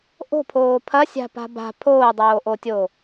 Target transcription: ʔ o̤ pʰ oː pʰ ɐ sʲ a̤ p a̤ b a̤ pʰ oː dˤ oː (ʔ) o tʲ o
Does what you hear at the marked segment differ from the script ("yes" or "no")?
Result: no